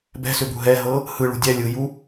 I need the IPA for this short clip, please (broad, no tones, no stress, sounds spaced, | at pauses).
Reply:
b ɛ̤ s ʏ b ṳ ɦ ɛ ɦ ɤ | h ɯ ɭ ṳ dʲ ɛ lʲ ɯ j u